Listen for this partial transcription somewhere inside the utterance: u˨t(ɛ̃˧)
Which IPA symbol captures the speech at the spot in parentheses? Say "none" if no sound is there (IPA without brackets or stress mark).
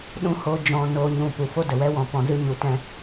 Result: ɛ̃˧